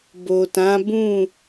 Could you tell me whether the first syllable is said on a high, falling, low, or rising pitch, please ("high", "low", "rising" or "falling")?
low